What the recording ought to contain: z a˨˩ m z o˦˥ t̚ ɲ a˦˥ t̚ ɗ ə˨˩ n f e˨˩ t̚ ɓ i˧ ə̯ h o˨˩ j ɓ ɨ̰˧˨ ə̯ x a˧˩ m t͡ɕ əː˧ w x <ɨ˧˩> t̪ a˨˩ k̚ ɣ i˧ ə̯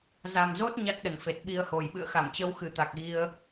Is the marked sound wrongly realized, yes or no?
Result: no